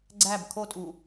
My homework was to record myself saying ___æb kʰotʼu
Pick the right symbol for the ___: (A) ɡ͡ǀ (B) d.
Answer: A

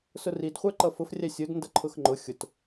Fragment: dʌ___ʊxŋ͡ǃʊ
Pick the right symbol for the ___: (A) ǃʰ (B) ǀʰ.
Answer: A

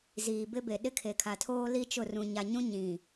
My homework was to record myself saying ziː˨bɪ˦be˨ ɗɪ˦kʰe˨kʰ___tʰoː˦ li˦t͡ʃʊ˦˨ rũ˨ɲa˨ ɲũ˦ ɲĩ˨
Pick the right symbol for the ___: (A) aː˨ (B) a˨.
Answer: B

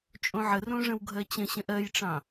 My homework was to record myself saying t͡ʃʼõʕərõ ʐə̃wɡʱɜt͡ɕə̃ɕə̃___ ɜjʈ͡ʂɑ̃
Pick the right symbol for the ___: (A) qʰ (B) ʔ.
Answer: B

